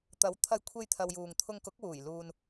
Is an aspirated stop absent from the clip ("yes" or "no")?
no